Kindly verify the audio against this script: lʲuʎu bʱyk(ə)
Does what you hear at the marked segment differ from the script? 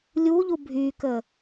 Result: no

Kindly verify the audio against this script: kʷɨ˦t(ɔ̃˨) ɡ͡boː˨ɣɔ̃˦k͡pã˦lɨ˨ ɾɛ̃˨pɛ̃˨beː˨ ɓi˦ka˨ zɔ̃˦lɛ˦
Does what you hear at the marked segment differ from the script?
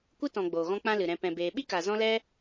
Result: no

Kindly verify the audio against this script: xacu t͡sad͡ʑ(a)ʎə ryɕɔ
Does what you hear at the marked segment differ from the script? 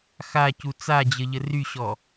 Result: yes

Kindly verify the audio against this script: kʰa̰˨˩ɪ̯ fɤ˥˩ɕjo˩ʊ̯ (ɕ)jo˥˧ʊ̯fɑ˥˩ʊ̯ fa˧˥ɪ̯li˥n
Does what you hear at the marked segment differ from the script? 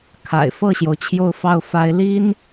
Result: yes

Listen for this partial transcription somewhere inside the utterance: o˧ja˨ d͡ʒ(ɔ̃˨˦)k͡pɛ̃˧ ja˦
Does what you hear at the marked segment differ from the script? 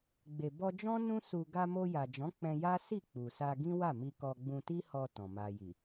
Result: no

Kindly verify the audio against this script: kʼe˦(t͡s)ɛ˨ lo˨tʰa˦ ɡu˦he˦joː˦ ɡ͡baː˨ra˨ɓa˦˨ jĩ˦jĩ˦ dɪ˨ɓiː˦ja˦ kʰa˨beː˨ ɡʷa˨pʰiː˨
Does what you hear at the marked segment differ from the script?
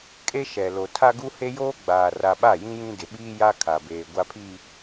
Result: yes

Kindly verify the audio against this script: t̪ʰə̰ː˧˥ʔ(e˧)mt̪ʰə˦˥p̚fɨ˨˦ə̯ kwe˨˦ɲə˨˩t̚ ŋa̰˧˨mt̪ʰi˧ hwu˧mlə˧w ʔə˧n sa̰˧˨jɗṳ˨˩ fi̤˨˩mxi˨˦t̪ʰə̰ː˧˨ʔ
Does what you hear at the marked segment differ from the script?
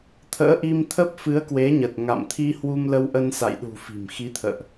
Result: yes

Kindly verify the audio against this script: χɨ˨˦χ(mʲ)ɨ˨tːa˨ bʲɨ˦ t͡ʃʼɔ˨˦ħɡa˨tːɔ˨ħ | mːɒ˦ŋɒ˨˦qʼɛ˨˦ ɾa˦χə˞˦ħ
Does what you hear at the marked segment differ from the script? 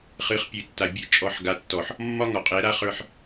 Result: yes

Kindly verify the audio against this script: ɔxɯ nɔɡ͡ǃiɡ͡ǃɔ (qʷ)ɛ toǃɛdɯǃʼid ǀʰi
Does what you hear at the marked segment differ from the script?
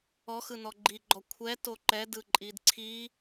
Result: yes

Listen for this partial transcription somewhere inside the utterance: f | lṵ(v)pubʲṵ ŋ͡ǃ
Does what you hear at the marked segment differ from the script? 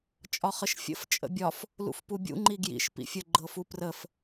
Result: yes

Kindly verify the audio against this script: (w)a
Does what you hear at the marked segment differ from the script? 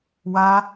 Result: no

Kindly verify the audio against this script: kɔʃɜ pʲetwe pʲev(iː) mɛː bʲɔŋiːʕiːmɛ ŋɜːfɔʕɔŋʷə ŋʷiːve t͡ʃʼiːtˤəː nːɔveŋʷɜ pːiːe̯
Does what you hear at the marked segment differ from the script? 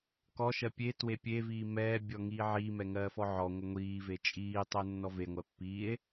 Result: no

